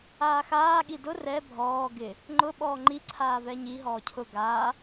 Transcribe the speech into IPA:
aːxaː ɠidʊ rɛ bʱɔː ɡɪ | ŋ͡ǃʊ ɓɔːŋ͡ǃi ǀʰaːvɛɲi ɦɔːcʰʊ ɡaː

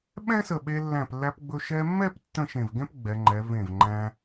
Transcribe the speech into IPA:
ɓɛ̃˥sə˧˩ɓe˧ lːæ̃˧˩plːæ˧pɡ͡bɵ˧ ʃɛ˧mːɛ˥˧p tːə̃˥˧ʃẽ˧˩vɡɛ̃˥pɡ͡bɛ˩˧ ŋ͡ǃɛ˩˧vẽ˧˩v ŋ͡ǃæ̃˧

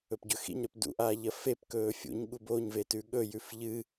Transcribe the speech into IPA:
ɵpɟɵxḭɲɾɵp dṵʔaːʎɐ fep kɵːfʲṵɲ ɠuboɲvetʉ ɠɵ jʉfʎɨ

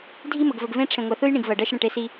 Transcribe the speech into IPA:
dʱi˦mə˨ɡvə˨ɡvẽ˦ ʈ͡ʂʰẽ˨ŋʷɜ˨θɯ˦jɳĩ˨ɡ vɜ˨ɖɜ˦ʃɽə̃˦˨ʈe˦ si˦

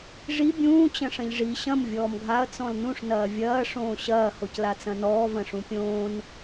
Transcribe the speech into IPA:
ʐi bʲũː t͡ɕɐ̃ʂɐ̃ʎʐi ɕɐ̃m vʲɔːmɡʱaɐ̯ t͡sɔ̃lnũʂ nɐːvʲɐː ʂõːɕɐː hoclat͡sɐ̃nɔː vɐ̃ʂũpʲõːn

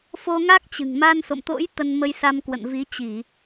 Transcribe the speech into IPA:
fo˧ŋa˦˥k̚ t͡ɕɨ̤˨˩ŋ ma˧nso̰˧˨mt̪o̰˧˥j t̪ə˧nmə˧jsa˧m kwə̰˧˨n vi˨˦t͡ɕi˧˩˨

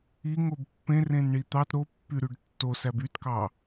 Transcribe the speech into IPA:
iŋob pːẽrẽnɳi t̪ɑt ɾopːyɾyɖ tːosæb ytkɑ

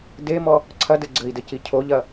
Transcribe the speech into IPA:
demɔ | ǀʰɐdɘ ɡ͡ǀɘi̯dɘci cʰoʎɐ

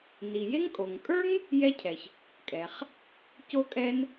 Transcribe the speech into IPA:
ni˩je˥ŋ kʼo˩ŋkʼə˞˥ŋ | jɛ˥cʰɛ˩ç | kʼɛ˩χ | co˥kʼɛ˥n

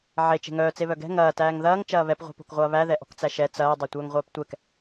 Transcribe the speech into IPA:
ʕe t͡ʃe̤ŋœː t͡seβœɡɛ̤ ŋɐː tæːŋðɐːŋ t͡ʃɐːβɛp ʁʷɛ̤po̤kʁʷɐːβæ ðɛʔɔ̤kt͡sæʃɛ t͡sɐː dˤetʷœːŋʁʷœːptʷɛk

